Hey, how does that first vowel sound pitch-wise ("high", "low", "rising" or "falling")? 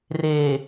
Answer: low